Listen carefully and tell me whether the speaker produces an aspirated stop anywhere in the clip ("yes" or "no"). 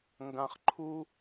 yes